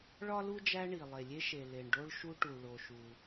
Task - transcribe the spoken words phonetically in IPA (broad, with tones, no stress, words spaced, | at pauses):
ɭɒ˥lu˥d͡ʒæ˦ ɳi˩ lˠe˩lʲe˦ʃe˩ le˩ɳɖo˦ɭʃu˦ ʈu˩ɭo˩ʃu˩